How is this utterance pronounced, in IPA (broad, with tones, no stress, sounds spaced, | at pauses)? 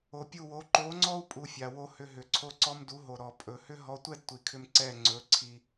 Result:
o˨ pʲ u˦˨ w o˨˦ ǃ o˨˦ ŋ͡ǀ ɔ˦ u̯ pʼ u˧ fʲ a˨ w o˦ h ʏ˧ ɦ ʏ˨ ǀʰ o˦ ǀ ɔ˦ m d u˨˦ ɦ o˨ ɾ ɔ˨ pʼ ɵ˨ h ʏ˦ ɦ ɔ˧ tʷ ɛ˦ d tʷ i˨ kʰ ʏ˧ m ǀ ɛ˦˨ ŋ͡ǀ ɵ˨˦ ǀʰ i˧